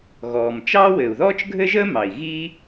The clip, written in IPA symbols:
ɣɔː˩mt͡ʃɑː˥ wɘː˩u̯ðɔː˥t͡ʃɡʱɘ˥ʒəː˥ mɑ˩i̯ɣi˥

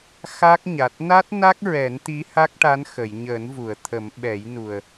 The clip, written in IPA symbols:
xa˦˥k̚ɲa˨˩t̚ na˦˥t̚na˦˥k̚ɹɛ˨˩˦n t̪i˧˥ha˦˥k̚ʈa˧˥n xə˨˩˨jɲəː˨˩˦nvu˨˩˨ə̯ t̪ʰə˨˩˦mɓɛ˨˩˦jnu˨˩ə̯

